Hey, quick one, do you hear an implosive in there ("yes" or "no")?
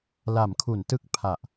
no